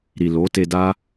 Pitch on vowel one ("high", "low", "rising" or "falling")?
low